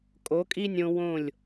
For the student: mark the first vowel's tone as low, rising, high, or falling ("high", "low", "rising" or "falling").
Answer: rising